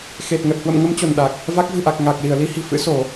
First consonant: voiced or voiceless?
voiceless